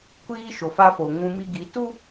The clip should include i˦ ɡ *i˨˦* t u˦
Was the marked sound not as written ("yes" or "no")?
no